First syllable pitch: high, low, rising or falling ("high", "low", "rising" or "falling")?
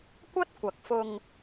high